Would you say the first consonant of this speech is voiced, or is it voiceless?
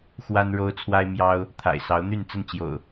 voiceless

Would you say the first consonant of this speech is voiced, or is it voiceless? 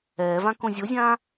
voiced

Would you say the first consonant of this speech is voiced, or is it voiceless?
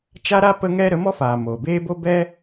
voiceless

